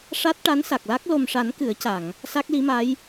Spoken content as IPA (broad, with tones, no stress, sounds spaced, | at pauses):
ʂ a˦˥ t̚ ʈ a˧˥ n s a˨˩ k̚ l a˦˥ k̚ l o˨˩ m ʂ a˨˩˦ n k ɨ˨˩˦ ə̯ c a˨˩˨ ŋ | s a˦˥ k̚ l i˧˥ m a˧˥ j